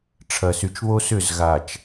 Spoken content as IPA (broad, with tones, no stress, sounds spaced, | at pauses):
ʈ͡ʂʰ ɐ˨ s y˨ t͡ʃ β o˦ s ʏ˦˨ z ɣ a˨ t͡ʃ